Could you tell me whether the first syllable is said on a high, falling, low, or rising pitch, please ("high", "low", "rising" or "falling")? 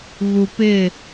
low